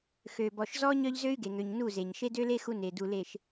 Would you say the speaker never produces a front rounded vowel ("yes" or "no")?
no